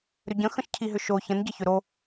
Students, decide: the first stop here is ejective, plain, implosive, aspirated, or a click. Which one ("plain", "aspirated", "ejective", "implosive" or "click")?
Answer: plain